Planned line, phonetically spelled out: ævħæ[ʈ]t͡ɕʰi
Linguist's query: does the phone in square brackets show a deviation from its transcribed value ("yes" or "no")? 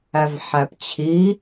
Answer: yes